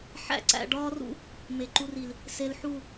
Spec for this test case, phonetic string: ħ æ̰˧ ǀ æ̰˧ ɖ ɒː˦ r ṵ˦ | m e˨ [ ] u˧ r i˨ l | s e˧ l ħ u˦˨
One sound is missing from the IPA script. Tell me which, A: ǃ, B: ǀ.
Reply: A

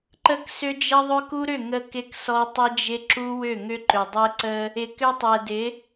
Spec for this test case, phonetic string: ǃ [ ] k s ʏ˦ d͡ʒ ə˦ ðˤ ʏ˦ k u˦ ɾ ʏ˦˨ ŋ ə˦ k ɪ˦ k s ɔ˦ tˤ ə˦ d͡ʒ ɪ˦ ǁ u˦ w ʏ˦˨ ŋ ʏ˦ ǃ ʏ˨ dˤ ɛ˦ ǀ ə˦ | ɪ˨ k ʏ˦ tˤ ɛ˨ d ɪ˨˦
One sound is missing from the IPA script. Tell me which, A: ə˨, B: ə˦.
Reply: B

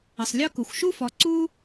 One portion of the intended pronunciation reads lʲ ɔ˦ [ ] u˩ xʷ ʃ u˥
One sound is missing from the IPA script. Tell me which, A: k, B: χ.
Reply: A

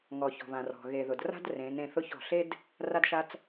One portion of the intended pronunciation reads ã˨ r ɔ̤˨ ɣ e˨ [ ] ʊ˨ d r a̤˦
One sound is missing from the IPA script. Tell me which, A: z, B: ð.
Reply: B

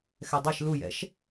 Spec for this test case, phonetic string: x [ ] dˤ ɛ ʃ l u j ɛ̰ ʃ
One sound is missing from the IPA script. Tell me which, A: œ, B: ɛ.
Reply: B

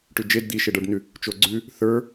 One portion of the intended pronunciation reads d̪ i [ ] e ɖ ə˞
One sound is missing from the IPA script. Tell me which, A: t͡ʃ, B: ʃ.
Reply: B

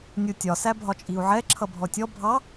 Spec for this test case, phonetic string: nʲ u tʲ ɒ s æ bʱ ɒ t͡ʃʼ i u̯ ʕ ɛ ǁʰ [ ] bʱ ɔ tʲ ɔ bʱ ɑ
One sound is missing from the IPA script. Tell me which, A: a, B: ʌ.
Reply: B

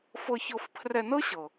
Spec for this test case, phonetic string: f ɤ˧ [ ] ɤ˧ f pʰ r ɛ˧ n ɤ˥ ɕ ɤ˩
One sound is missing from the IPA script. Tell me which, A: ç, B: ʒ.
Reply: A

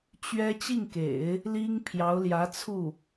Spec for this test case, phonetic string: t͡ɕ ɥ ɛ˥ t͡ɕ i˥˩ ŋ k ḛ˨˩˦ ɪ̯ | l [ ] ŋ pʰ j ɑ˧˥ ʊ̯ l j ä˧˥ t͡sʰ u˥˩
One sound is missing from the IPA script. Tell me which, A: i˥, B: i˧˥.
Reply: A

